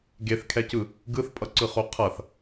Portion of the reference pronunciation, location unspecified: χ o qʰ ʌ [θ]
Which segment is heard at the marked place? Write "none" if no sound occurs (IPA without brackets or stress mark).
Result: θ